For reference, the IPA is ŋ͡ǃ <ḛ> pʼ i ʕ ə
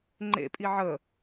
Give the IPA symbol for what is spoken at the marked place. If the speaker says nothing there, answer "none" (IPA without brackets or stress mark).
ḛ